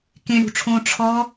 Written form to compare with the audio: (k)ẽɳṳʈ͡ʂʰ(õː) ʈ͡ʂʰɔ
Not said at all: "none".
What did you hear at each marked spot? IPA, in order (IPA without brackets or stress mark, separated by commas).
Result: k, õː